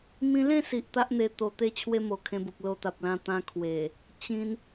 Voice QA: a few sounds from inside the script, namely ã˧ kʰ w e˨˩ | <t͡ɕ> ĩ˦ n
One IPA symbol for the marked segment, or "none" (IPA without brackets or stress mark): t͡ɕ